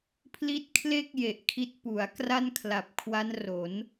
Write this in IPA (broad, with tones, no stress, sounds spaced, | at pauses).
pʰ l i˦˥ t̚ kʰ l e˥˩ k̚ j e˨˩ ʔ kʰ i˦˥ t̚ p u˩˦ a̯ k r a˥˩ n kʰ l a˨˩ p̚ kʰ w a˦˥ n r o˩˦ n